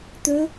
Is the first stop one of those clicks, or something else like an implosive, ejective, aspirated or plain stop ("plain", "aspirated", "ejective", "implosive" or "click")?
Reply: plain